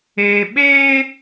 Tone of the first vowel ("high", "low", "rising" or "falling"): low